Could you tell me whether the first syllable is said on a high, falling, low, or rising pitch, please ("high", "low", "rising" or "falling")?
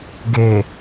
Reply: low